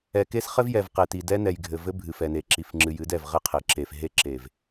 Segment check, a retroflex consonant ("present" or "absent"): absent